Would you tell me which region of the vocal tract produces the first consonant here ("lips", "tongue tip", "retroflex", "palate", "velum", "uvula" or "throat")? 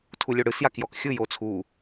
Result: tongue tip